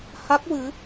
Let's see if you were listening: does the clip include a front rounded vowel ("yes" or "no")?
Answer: no